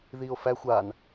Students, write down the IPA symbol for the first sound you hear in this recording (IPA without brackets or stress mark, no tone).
ð